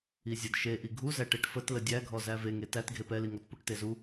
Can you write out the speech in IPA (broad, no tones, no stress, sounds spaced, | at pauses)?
i zʲ ə d ʃ e ʔ i ɡʱ u z æ ʈ e ʈ f ə t l ə dʲ æ ɡʱ ɔ z æ v e ŋ e t æ t ɡʱ e p ɛ l i ŋ ɔ t p u ʈ t e z u